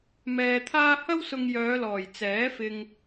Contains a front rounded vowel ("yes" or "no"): yes